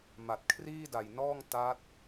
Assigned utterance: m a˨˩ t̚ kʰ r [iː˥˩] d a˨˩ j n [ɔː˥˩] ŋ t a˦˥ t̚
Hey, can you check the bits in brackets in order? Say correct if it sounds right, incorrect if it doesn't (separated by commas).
correct, correct